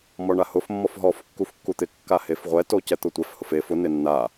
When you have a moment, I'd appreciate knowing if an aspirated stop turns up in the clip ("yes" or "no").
no